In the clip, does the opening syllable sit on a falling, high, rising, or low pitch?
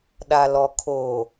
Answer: low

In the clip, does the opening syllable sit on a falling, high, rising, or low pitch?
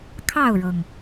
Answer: falling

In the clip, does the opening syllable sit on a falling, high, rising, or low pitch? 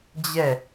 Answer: falling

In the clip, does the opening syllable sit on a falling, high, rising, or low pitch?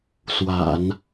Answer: low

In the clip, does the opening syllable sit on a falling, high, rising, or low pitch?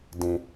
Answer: low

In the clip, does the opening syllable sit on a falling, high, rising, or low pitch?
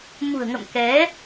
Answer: low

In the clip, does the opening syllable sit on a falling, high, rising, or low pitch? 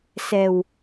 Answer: low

